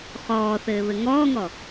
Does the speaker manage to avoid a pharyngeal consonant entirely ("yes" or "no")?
yes